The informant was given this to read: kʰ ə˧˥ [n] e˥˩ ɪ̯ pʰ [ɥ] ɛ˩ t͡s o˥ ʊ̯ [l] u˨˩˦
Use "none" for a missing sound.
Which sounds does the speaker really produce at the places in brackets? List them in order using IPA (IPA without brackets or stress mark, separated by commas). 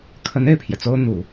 n, j, n̪